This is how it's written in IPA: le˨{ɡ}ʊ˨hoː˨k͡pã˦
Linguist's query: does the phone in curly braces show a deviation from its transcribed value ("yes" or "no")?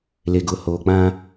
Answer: no